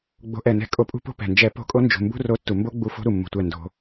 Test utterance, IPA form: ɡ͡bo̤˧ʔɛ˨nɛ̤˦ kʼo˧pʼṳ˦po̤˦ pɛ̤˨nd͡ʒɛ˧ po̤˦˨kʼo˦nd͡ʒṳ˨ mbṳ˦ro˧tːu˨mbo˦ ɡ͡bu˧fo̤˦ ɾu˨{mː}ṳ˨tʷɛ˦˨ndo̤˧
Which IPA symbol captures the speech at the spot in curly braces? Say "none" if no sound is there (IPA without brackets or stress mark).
mː